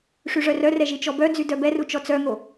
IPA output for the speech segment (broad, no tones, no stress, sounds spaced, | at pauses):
ʂ y ʐ œ r œ r ɛ ʒ i t͡ʃ ɔ b œ d͡z y d œ b ɛ r u t͡ʃ ɔ t͡s œ ŋ o